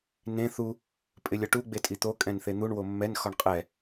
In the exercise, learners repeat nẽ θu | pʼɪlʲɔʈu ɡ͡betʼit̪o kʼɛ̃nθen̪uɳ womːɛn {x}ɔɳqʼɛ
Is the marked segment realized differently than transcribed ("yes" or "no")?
no